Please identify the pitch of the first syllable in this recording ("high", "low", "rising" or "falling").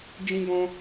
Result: high